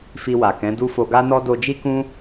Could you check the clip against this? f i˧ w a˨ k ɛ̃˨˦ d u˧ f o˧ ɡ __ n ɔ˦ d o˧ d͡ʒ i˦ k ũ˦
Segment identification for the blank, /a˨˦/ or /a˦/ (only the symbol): a˦